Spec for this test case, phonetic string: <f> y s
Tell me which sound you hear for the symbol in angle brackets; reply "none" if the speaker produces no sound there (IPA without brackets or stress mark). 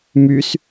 m